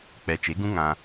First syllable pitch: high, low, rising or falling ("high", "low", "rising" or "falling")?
low